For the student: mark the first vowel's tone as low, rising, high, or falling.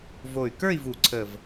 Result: low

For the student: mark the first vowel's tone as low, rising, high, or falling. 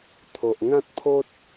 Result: low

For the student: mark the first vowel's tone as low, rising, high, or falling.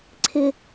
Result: high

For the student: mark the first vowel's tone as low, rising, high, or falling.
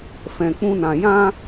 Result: low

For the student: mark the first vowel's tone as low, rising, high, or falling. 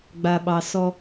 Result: low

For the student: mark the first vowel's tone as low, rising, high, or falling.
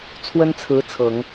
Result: high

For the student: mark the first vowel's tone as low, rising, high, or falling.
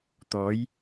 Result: rising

